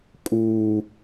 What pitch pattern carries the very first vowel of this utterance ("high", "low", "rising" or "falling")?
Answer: high